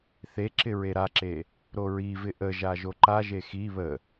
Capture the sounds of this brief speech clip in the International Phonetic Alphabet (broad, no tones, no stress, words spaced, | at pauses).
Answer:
θe ǁɪɹeɾaǁe | ɾoɹivɪ ʔəʒa ʒoǃaʒe xi βə